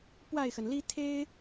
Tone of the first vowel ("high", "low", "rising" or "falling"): falling